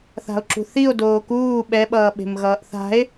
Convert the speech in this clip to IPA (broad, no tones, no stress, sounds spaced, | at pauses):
θ a̤ o̯ ǁ ṳ θ i o̯ d oː k uː ɓ ɛ ɓ ʌː ɓ e̤ m ɣ ʌː ʔ θ a̤ e̯